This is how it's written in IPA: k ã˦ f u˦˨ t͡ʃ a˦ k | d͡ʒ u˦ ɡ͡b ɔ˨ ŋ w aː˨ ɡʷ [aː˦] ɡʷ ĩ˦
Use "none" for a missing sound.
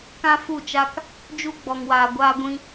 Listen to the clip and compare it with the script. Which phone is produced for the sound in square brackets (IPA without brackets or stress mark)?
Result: aː˦